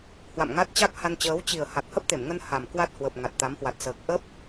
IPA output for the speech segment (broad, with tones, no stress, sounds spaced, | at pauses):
h w a̰˧˨ m ŋ a˦˥ t̚ t͡ɕ a˦˥ k̚ h a˧ n t͡ɕ əː˨˦ w t͡ɕ i˨˩ ə̯ h a˨˩ k̚ h ə˦˥ p̚ t̪ e˧˩ m ŋ ə˧ n h a˨˩ m k w a˦˥ t̚ h w ə˨˩ p̚ ŋ a˨˩ t̚ t̪ a˨˦ m h w a˨˩ t̚ s əː˨˩ k̚ ʔ ə˦˥ p̚